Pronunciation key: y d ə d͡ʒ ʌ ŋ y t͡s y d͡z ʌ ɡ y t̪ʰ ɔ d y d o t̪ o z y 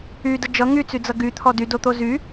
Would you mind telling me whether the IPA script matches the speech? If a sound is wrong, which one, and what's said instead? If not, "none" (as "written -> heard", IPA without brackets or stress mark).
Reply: none